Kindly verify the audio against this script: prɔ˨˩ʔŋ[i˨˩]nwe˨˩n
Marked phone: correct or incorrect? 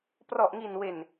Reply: correct